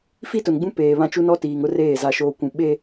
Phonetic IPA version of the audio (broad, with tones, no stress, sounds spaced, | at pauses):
f i˦ t ʊ˨ n ɡ͡b ũ˦ p eː˨ β ã˦ t͡ʃ u˦ n ɔ˦ t iː˨ ŋ ʊ˦ r eː˦˨ z a˨ ʃ oː˨ kʷ ũ˨ ɓ e˦